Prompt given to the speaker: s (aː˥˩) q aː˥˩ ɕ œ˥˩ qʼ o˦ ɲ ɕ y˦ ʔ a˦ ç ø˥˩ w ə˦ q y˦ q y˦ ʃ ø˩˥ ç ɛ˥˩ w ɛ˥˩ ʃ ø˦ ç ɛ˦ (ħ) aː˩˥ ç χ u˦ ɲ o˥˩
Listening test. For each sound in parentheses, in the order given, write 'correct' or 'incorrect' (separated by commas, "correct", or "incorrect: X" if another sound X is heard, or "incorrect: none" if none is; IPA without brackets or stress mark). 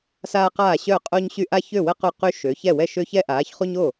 incorrect: aː˦, incorrect: ʔ